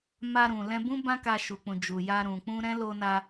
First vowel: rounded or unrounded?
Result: unrounded